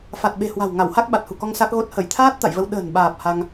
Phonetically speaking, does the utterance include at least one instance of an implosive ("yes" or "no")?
yes